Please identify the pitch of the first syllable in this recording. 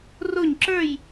falling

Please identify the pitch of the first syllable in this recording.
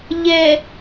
low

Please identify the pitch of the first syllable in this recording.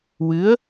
rising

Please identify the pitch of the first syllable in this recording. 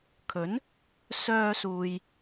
rising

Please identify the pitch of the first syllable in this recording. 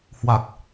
low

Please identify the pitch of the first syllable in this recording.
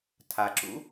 low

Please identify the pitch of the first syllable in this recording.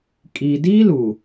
low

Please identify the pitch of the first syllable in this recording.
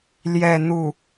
falling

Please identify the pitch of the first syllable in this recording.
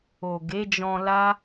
low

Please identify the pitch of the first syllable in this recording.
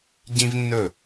high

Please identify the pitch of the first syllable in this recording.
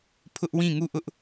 high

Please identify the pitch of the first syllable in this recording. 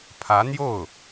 rising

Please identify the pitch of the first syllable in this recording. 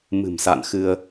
low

